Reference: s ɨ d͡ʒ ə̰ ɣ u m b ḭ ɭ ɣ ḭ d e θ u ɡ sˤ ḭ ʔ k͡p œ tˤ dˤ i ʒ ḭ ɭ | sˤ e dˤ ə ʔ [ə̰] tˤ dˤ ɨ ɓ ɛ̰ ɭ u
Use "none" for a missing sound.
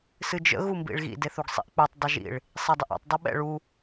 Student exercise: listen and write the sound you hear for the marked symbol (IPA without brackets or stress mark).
ɛ̰